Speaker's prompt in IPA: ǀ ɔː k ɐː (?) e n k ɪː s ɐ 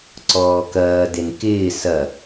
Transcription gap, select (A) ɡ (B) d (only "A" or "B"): B